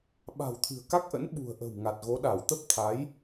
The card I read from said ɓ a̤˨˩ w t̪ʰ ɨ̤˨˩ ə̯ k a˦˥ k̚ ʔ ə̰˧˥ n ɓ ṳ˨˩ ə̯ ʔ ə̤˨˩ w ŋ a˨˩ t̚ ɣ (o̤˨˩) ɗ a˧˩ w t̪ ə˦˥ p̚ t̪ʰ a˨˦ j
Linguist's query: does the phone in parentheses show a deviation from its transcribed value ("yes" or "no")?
yes